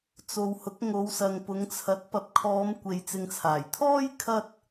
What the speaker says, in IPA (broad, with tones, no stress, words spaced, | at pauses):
t͡so˨whʊ˨˥k̚ ŋo˨˧wsɐ˨ŋpʊ˨˧ŋt͡sʰɐ˨˥t̚ pɐ˨p̚kʰɔː˨˧mkʷe˨j t͡sɪ˨ŋt͡sʰaː˨˩jt̪ʰɔː˥j kʰɐ˧t̚